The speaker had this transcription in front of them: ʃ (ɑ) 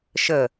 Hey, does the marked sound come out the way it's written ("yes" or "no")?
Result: no